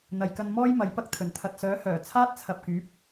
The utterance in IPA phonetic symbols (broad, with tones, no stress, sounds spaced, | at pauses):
n̪ ɐ˨ j k ɐ˧ n m ɔː˥ j m ɐ˨˥ j p ɐ˥ k̚ t̪ʰ ɵ˨˩ n t̪ʰ ɐ˨ t̚ s œː˨˥ h œː˨˩ t͡sʰ aː˥ t̚ t͡sʰ ɐ˨ p̚ k yː˨˥ p̚